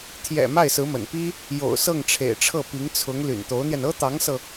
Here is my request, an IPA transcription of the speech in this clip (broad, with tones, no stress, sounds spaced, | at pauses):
t̪ʰ j ɛ̰˨˩ m a˥˩ ɪ̯ s ɹ̩˧˥ m ə̰˨˩ n p i˥ | j o̰˨˩ ʊ̯ s ɤ˥˩ ŋ ʈ͡ʂʰ ḛ˨˩ ɪ̯ ʈ͡ʂʰ ɤ˥˩ p i˧˥ ŋ t͡sʰ ʊ˧˥ ŋ l y̰˨˩ n t̪ o˧˥ ʊ̯ n̪ j ɛ˧ n ɤ˥ t̪ ɑ˧˥ ŋ s ɤ˧